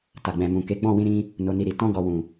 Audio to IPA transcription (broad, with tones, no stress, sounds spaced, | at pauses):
t a˨ ɡ͡b ɛ̃˨ m ũ˨ k e˨˦ ɡ͡b ɔ̃˦˨ w ĩ˧ ɾ ĩ˧ | n o˨ n i˨ ɾ i˨ t ɔ̃˧ ɡ ɔ˨ w ũ˨